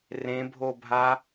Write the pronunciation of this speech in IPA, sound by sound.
r ẽ bʱ o bʱ a

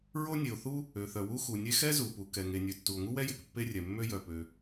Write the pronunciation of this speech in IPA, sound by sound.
ɹ o˥ nʲ e˩ o̯ θ u˥ | ø˩ θ œ˩ w u˥ x u˩ nʲ e˥ x ɛ˥ z u˩ p u˩ k ɛ˩ ŋ e˩ nʲ ø˩ tː u˩ o̯ ŋ u˥ w ɛ˥ j e˩ k pː e˥ rʲ ɛ˩ mː ø˥ j œ˩ p ø˩

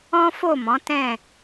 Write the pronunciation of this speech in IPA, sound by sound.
ɔ̃˦ f o˦˨ m ɔ̃˨˦ t ɛ̃˦˨

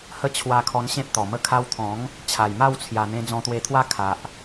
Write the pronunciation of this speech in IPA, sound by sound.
h ə˦ t͡ɕʰ w a˧ kʰ ɔ˧ n ɕ ẽ˦ p̚ t̪ ɔ˨˩ m ə˦ kʰ a˧ w t̪ʰ ɔ̃˨˦ ŋ | t͡ɕʰ a˨˩ j m a˥˧ w t͡sʰ j a˨˩ n̪ ẽ˧ d͡z ɔ̃˧ t̪ w e˧ t̪ʰ w a˦ kʰ a˨ ʔ

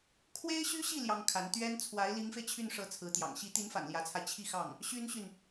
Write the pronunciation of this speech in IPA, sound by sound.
kʰ w e˥ ɪ̯ ɕ y˥ ɕ i˥˩ l j ɑ˥ ŋ kʰ a˧˥ n t̪ ɥ ɛ˥ n t͡sʰ w a˧˥ ɪ̯ l i˧˥ ŋ f e˧ ɪ̯ t͡ɕʰ y˥˩ n ʂ ɤ˧˥ t͡sʰ ɹ̩˧˥ t̪ j ɑ̰˨˩ ŋ ɕ i˧˥ t̪ i˧˥ n f a̰˨˩ n l j ä˧˥ t͡sʰ a˧ ɪ̯ t͡ɕʰ i˥˧ x ɑ˥˩ ŋ | ɕ y˥ n ɕ y˨ n

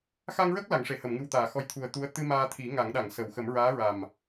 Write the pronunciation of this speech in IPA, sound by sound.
x a˧ ŋ ɹ ə˦˥ k̚ l a˨˩˦ ŋ ʂ e˨˩˨ h ə˨˩˨ m ŋ ɨ˨˩ w t̪ aː˨˩˨ x ɔ˧˥ j t̪ʰ u˨˩ ə̯ t̪ u˧˥ ə̯ t̪ ɨ˧ m aː˧ t̪ʰ i˨˩˦ ŋ a˨˩˦ ŋ ɗ a˨˩˨ ŋ s ə˨˩˨ w x ə˨˩˦ m ɹ aː˧˥ ɹ a˨˩ m

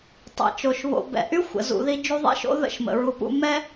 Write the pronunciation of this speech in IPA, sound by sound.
tˤ ɛ̰˩ t͡ʃ o˩ ʃ β o̰˨ b ɛ̰˨ ʔ y˥ xʷ ə̰˩ z ṵ˨ ð i˦ d͡ʒ u˦ ðˤ ḛ˥ ʃ o̰˥ ð ə̰˥ ʃ m ə̰˩ ɹ u˨ p ṵ˦ m ɛ˥

